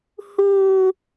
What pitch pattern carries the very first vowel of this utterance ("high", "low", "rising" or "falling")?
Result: high